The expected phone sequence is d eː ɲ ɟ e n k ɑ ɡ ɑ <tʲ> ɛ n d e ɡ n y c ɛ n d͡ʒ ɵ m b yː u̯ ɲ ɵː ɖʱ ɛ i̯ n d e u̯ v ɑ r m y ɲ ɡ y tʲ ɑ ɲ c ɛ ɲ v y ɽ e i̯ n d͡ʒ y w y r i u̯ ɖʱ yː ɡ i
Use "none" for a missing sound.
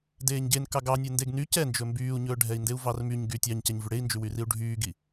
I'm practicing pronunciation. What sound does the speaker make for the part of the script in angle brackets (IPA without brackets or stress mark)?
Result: nʲ